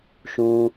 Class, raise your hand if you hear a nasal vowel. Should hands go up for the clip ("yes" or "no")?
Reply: yes